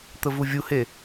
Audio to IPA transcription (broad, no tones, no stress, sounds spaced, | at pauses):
t̪ ə v u vʲ u h e